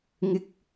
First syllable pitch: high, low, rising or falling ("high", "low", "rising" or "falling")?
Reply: rising